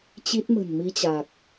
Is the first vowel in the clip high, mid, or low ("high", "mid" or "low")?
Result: high